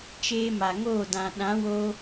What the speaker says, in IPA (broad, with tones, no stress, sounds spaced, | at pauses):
t͡ʃ eː˧ m a˨ ŋ oː˦˨ d ã˨ ɗ ã˨˦ w oː˧